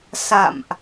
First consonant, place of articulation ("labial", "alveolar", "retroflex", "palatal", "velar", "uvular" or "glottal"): alveolar